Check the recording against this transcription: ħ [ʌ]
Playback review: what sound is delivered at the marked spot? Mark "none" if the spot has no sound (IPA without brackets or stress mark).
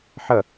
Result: ʌ